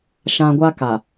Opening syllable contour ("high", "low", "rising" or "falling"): low